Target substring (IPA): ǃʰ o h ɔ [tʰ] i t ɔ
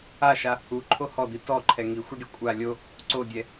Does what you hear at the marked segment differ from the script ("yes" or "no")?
yes